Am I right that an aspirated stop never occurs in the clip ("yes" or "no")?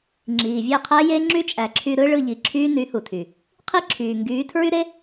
no